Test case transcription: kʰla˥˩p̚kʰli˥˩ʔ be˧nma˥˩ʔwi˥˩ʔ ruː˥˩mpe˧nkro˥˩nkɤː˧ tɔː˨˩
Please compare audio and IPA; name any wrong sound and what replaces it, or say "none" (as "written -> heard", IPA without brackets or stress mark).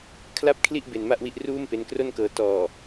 none